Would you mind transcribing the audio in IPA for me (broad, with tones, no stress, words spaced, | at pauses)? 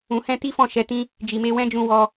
ũ˨hɛ̃˧ti˦fɔ̃˦˨ ʃɛ˨˦tĩ˦ | d͡ʒi˨me˧ wɛ̃˦d͡ʒũ˧ wɔ˧